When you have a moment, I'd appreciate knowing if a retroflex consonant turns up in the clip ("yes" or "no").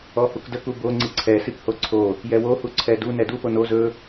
no